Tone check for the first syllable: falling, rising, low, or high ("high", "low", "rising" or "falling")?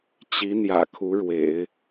rising